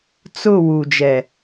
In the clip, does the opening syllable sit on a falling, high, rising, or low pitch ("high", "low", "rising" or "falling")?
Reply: falling